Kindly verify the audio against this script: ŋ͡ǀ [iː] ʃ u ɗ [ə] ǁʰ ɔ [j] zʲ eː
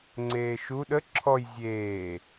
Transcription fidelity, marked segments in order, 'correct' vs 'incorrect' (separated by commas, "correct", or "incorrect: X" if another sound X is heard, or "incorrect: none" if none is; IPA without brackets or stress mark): incorrect: eː, correct, correct